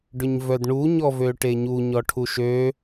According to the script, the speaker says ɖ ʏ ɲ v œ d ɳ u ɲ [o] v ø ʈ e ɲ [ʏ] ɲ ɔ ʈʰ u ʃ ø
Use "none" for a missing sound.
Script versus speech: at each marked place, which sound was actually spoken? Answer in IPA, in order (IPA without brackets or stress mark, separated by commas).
ɔ, u